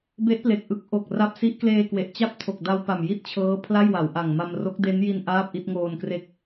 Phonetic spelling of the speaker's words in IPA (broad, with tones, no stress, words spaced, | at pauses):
be˦˥ʔple˨˩k̚ʔɯ˦˥k̚ ʔo˨˩k̚ ra˦˥p̚si˦˥ʔ kleː˧kwe˨˩ʔ t͡ɕa˥˩p̚tʰo˨˩k̚da˧w pa˨˩mji˥˩t̚t͡ɕʰɤː˦˥ pʰla˥˩jwa˩˦wʔa˨˩ŋma˧m ro˦˥k̚de˦˥nji˧n ʔaː˥˩p̚ʔi˥˩t̚ŋoː˧n kre˥˩k̚